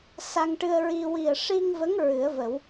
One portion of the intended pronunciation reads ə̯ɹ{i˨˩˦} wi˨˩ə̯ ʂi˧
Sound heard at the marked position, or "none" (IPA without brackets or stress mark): i˧